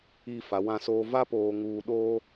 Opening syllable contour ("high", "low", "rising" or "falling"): falling